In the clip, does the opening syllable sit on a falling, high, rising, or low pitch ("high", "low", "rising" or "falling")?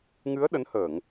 rising